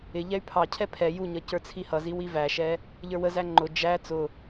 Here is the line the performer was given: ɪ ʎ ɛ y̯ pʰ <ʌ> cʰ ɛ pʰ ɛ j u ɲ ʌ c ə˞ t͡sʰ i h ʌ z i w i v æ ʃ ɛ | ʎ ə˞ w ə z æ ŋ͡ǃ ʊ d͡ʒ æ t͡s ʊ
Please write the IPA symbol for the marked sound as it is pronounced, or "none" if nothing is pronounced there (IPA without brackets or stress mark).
ɑ